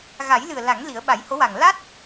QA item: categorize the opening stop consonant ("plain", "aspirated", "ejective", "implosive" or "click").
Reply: implosive